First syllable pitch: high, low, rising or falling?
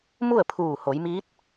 falling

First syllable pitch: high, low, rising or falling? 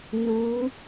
rising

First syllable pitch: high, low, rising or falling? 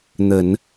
low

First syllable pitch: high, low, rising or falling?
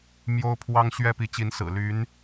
high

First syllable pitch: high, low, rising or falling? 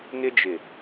high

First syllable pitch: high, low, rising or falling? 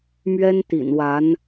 high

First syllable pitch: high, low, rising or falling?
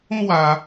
high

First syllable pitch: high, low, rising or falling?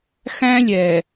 high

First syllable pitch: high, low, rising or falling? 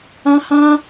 high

